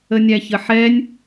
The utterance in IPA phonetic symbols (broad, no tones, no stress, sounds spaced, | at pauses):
ə nʲ æ ç ə ħ ɛ nʲ